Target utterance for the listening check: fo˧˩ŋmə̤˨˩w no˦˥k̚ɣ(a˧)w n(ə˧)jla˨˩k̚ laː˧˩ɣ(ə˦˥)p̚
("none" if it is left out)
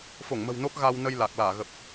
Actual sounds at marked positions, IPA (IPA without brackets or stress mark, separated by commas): a˧, ə˧, ə˨˩